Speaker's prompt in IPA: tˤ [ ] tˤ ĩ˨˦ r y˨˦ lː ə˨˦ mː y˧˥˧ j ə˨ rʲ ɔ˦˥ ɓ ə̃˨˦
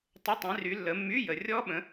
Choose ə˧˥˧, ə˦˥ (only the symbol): ə˧˥˧